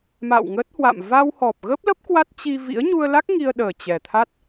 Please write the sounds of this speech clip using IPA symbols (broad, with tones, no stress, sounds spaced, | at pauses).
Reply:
m a̰˧˨ w ŋ əː˦˥ t̚ h w a̰˧˨ m v a˧ w h ɔ˨˩ p̚ ɣ ə˦˥ p̚ l ə˦˥ p̚ k w a˦˥ t̚ t͡ɕ i˧ v ḭ˧˥ ə̯ ɲ u˧ ə̯ l a˦˥ k̚ ŋ i˧ ə̯ ɗ əː˨˩ t͡ɕ ɛ˨˩ t̪ʰ a˦˥ t̚